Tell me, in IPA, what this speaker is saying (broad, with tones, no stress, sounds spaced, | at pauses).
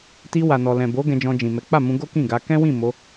t i˧ w a˨ n ɔ˨ l ɛ̃˨ b o˨˦ ɡ ɛ̃˧ d͡ʒ ɔ̃˧ d͡ʒ ĩ˨ m ɛ˨˦ k͡p a˦˨ m ũ˧ ɡ o˦ k ĩ˦˨ ɡ a˧ k ɛ̃˦ w ĩ˦˨ m o˨˦